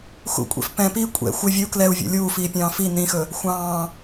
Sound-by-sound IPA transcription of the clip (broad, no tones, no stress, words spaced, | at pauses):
xṵkʷʼɛ̰f pɛ̃piː kʷʼɛ̰ xʷɪ vʲəu̯ klɛu̯vʲɛ̰ lʲuːfiːpʲɑ̃ː fi nĩxɵ | xʷɑ̃ː